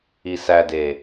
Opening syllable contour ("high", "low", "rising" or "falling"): low